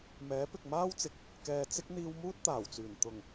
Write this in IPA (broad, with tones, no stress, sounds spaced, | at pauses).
m ɛː˨˥ p ɪ˨ k̚ m aː˥ w t͡s ɪ˨ k̚ | k ɛː˨ t͡s ɪ˥ k̚ n̪ iː˧ w m uː˥ t̚ t̪ aː˨˩ w t͡s yː˨˩ n t̪ ʊ˨˩ ŋ